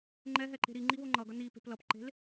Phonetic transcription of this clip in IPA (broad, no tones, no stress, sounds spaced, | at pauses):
ŋ͡ǃ ɛ ɦ ɛ ǃ e̤ ɾ i ŋ͡ǃ i w o ŋ͡ǃ ʌ ɡ ʌ n i p e̤ p l ʌ p ǃ e̤ l